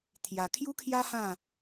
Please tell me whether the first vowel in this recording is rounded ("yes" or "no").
no